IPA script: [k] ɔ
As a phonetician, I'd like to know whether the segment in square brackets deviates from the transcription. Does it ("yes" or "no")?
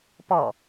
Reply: yes